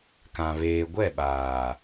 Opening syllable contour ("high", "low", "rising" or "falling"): low